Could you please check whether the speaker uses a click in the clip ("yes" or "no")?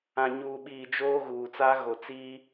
no